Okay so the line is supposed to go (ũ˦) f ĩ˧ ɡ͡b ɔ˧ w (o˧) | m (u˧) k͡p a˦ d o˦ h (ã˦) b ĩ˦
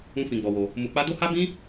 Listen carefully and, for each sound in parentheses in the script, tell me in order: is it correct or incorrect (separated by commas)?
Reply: correct, correct, correct, incorrect